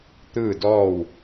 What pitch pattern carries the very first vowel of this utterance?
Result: falling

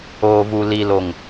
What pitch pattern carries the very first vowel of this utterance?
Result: low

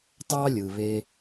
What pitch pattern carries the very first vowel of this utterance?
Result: high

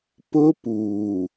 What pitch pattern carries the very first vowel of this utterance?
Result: high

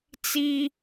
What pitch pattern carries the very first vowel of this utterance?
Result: high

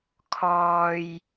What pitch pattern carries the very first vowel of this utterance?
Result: low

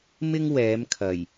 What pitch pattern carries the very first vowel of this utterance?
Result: high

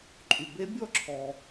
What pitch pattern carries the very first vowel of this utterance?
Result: low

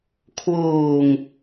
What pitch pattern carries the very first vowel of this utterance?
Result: low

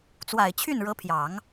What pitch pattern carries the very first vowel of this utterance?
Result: low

